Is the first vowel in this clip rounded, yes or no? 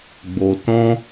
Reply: yes